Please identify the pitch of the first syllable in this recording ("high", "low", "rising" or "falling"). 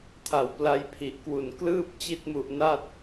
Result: low